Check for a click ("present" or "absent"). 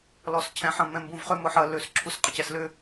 present